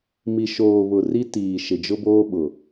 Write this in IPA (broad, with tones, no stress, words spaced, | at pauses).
mi˨ʃoː˨ βʊ˨ri˦ tiː˨ ʃɪ˨d͡ʒʊ˦boː˦ɓʊ˨